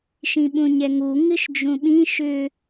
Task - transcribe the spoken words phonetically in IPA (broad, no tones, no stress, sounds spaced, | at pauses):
ʃ ĩ ɓ ũ ɲ ɛ ŋ u ŋ ɨ ʃ d͡ʒ ũ ɓ ĩ ʃ ʏ